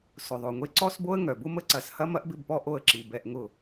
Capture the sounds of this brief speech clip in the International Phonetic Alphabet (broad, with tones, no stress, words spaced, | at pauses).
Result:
sʊ˨ðˤo˨ŋʷe˦ ǀɔ˦sbo˦ə̯ŋœ˨bʊ˦ mə˦ǀɐ˨˦s hɐ˦mɐ˦ʔbɪ˦˨bpɔ˦ ʔo˧ə̯ǁi˨ bɛ˧ʔŋʊ˦˨